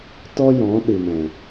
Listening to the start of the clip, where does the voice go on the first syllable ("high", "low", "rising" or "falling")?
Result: high